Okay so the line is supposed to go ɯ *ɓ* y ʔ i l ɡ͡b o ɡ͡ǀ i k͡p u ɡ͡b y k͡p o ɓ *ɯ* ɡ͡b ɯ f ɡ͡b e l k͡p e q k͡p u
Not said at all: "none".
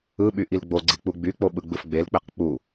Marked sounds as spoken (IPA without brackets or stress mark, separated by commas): ɓ, ɯ